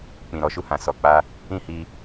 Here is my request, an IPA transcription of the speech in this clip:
k͡pĩ˨ɾɔ˨˦ʃu˧hã˨ sɔ˨k͡pa˧ | ĩ˦hi˧

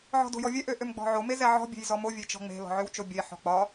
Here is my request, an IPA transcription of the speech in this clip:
ʕɔ̤do̤jɔvʲɛ ʔøʔømɡ͡bɔ̤ʕo mezɛʕɔ̤ bʲe̤jzɔmo vʲet͡ʃɔ̤ŋ͡me̤ lɔ̤ʕøwt͡ʃobʲe ħɔ̤k͡pɒ

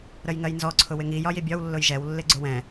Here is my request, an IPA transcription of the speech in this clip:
ɾəjŋɜjnzɔ ǀʰʊwɪŋi jɒjibʲɒw lːʊjʒɛw lːɪɡ͡ǀʊwɛ̃

